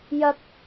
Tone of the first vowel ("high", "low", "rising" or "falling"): high